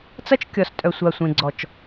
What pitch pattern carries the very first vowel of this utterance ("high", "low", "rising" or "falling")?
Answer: high